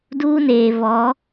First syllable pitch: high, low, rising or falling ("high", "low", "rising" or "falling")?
high